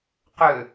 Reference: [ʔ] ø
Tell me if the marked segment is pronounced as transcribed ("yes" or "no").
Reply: no